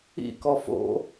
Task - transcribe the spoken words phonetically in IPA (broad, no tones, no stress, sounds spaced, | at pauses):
ḭ k ɔ f o̰